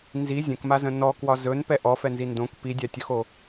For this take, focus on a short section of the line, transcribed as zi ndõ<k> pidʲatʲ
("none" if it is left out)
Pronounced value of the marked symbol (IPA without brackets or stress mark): k